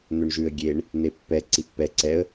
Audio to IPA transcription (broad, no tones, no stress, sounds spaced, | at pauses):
n̪ ø ɳ ʒ ʉ ə̯ ɡʲ e ɳ | n̪ e pː ɛ ǀ i pː ɛ ǀ ɛ ə̯